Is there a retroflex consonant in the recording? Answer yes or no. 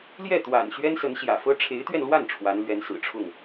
yes